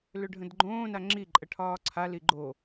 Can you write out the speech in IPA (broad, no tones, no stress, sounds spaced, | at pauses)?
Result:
l ø ɖʱ ə̃ d ɡ͡ǃ õː n a ŋ͡ǁ i ǃʼ ə ʈʰ ɒː ǀʰ a l i ɡ͡ǃ o